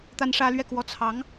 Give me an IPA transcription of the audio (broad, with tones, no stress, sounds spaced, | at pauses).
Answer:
t̪ a˦ n ʂ ä˦ l ɥ ɛ˥˨ k w ɔ˥˨ t͡sʰ ɑ˨˦ ŋ